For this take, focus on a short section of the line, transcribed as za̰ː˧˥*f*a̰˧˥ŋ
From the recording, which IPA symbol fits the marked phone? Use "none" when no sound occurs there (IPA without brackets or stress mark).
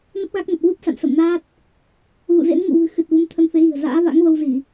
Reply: v